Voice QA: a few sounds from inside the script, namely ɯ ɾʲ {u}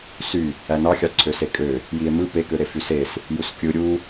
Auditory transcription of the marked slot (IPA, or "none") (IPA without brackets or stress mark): u